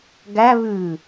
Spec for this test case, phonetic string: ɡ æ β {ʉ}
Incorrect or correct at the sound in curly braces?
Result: correct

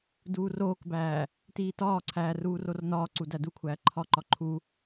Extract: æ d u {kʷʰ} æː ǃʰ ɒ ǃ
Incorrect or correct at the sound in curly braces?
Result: correct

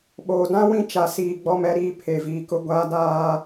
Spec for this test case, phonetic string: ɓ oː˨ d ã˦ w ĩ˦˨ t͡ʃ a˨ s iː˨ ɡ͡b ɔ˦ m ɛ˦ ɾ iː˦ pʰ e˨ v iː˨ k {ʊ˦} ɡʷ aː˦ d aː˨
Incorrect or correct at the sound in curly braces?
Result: correct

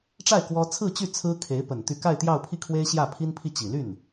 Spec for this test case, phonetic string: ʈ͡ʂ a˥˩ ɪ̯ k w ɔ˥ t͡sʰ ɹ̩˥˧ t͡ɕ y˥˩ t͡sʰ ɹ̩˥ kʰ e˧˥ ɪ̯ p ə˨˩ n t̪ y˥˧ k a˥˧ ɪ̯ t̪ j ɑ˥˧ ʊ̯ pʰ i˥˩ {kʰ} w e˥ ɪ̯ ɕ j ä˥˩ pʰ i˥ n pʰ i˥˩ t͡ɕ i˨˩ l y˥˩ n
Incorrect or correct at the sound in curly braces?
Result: correct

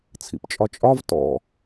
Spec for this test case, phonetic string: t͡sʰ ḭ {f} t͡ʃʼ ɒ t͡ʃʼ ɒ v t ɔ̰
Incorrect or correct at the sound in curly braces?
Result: incorrect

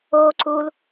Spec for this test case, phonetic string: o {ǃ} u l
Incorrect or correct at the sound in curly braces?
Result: incorrect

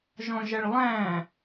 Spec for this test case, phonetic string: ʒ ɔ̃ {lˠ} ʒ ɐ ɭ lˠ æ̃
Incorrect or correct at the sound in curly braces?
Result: incorrect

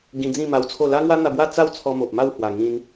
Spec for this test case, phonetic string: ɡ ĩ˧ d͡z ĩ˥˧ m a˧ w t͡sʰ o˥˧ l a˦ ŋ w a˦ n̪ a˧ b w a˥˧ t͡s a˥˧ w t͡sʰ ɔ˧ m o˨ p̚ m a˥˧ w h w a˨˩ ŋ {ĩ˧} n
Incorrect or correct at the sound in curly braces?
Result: correct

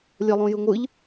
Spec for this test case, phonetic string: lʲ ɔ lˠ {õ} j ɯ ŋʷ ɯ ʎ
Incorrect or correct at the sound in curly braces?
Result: correct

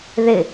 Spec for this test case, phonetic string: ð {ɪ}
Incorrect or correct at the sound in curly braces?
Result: correct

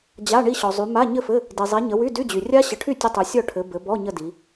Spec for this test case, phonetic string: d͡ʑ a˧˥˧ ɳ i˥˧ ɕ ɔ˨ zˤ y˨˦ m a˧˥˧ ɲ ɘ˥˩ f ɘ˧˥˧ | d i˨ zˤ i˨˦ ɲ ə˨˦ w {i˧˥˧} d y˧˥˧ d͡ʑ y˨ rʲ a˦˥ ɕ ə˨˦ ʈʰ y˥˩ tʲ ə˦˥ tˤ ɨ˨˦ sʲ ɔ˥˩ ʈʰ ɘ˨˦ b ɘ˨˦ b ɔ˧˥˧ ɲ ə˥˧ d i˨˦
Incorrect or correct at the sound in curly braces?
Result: incorrect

